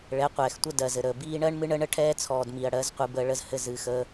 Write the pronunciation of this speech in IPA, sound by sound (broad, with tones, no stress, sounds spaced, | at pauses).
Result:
ɭ ɛ˨˦ qʷ ɛː˨ x tʷ ə˦ d ɜ˨ z ɘ˨ ɾ əː˨ b iː˦ ɳ ɜ˦ ɳ m ɨ˦ ɳ ə˦ ɳ ə˦ ʈʰ ɛː˦ t͡sʰ ɔː˨ d m i˨ ɐ̯ ɽ ɜ˨˦ z qʷ ɨ˨ b əː˦ ɭ ə˦ z h ɘ˦ z ɨː˨ x əː˦